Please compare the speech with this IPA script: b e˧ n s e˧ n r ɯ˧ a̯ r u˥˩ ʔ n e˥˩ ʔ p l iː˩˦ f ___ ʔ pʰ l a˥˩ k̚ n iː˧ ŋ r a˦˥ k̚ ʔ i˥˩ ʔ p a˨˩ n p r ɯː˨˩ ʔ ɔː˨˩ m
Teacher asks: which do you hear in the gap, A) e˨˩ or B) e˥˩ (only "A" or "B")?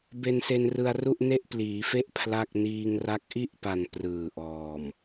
B